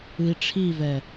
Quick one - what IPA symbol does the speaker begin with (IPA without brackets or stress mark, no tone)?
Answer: ɨ